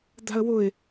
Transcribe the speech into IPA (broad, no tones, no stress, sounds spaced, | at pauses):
d̪ a̤ ə̯ w ʊ ɪ̯